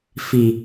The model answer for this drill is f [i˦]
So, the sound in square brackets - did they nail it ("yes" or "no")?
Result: no